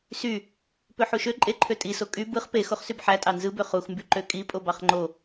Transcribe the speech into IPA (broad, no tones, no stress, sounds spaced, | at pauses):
s y | p ø ħ u ʃ ø ǃʼ e ǃʰ ø tʼ i s o kʼ y b ɯ χ p e x o χ s y b ħ æ tʼ ɑ n z ɯ b ø χ u x m b y ǃ ø kʼ i pʼ o b ɑ χ ŋ͡ǃ o